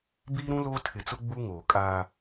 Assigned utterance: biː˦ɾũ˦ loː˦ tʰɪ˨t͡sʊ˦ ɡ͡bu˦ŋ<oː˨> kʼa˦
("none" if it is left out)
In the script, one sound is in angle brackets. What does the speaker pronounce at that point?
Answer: oː˨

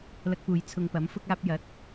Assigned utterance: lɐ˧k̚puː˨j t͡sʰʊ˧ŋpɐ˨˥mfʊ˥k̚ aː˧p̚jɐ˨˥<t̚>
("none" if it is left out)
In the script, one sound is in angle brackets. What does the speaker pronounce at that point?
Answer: t̚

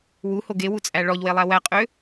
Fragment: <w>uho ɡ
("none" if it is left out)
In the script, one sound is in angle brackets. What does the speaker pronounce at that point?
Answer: w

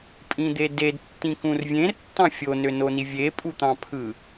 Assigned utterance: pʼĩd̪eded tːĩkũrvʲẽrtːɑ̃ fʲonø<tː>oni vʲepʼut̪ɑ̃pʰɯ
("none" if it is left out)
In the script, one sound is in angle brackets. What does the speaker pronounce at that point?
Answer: n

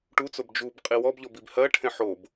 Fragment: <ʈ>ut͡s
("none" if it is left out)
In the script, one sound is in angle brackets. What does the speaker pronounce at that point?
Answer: ʈ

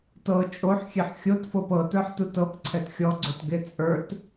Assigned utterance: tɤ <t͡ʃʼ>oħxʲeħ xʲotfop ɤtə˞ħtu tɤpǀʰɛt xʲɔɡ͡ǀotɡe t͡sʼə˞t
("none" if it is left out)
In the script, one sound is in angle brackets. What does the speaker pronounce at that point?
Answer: t͡ʃʼ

